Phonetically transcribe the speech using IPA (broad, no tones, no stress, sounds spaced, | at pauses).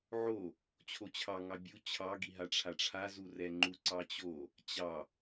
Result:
ʕ o | t͡ɕʰ o t͡ɕʰ ɑ ŋ ɑ bʲ u t͡ɕʰ ɑ ɡ i ɦ a ʈ͡ʂʰ a ʈ͡ʂʰ a z u r ɛ ŋ͡ǃ u ǀ ɑ t͡ɕ o | t͡ɕ ɑ